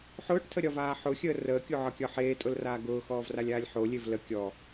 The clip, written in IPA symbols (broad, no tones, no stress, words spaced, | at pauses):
ħʊːʈtʰəɾʲɒvaː ħʊxʲəː rəːkʲoʕɒkʲɒ ħeːtʼʊlraː ɡʊːxɔːvralʲaːlʲ ħolʲev lə kʲɔ